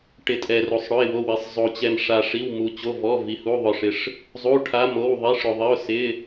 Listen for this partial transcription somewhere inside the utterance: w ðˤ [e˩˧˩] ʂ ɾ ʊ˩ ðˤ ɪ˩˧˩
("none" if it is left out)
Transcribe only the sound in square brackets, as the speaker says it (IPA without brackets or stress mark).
i˩˧˩